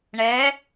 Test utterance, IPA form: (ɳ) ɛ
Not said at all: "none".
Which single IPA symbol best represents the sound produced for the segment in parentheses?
ɳ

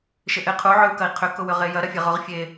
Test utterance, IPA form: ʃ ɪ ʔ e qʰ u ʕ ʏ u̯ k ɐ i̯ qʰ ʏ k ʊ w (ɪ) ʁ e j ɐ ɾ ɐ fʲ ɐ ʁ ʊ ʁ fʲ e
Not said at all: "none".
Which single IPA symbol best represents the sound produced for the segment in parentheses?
ʏ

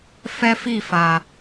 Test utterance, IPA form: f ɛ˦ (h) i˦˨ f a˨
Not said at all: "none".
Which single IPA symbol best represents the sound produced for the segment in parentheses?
f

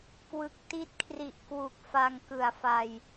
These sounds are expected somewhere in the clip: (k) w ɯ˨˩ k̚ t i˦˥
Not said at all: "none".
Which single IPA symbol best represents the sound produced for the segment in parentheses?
k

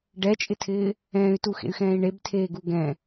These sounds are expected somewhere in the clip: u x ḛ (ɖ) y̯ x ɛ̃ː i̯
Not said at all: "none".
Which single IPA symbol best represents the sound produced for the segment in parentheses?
none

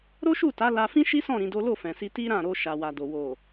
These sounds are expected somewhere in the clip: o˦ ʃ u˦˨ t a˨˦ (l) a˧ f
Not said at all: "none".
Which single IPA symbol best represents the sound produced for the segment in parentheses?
l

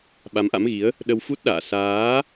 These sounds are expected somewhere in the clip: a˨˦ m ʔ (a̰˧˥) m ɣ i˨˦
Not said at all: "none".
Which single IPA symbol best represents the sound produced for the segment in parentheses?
a̰˧˥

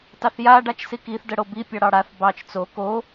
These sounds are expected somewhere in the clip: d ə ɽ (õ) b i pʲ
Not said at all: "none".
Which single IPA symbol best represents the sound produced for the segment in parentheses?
o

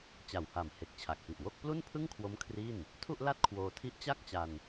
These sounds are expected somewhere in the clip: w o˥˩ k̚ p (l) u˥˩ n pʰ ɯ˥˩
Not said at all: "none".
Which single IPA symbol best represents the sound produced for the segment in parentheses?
l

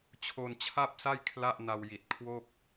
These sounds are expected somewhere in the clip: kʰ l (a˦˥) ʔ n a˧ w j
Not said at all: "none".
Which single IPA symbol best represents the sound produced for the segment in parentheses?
a˥˩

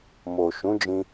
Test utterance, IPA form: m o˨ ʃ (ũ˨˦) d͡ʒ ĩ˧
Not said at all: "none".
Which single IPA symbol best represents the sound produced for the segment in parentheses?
ũ˨˦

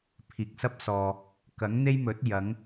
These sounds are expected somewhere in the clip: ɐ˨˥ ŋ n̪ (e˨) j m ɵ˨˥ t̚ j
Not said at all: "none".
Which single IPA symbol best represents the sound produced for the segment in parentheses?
e˥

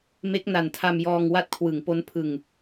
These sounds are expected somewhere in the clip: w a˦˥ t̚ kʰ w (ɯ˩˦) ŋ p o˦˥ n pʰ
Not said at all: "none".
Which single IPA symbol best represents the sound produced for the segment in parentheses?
ɯ˩˦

